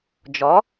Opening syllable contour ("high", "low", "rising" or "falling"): rising